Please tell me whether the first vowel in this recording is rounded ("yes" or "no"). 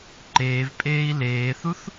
no